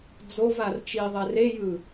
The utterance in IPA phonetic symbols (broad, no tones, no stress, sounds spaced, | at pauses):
d͡z o v a r t͡ʃ i ðˤ ɛ r e j ɯ